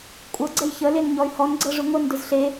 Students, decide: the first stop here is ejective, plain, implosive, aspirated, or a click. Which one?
ejective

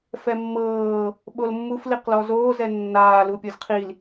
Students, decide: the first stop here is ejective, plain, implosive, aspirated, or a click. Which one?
implosive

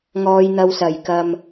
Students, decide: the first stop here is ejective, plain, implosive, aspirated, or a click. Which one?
plain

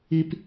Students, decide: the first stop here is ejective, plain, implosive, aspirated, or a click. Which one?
plain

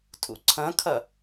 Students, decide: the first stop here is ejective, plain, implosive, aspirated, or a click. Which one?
aspirated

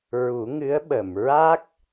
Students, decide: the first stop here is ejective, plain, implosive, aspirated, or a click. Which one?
implosive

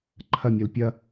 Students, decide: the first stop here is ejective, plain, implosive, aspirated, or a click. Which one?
click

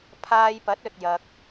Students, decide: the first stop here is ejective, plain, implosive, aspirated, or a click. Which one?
aspirated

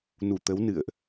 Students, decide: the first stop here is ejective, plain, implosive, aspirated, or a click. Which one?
plain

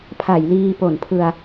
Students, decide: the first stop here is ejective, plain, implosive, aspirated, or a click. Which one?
aspirated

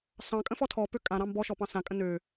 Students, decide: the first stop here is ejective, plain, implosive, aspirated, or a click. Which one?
ejective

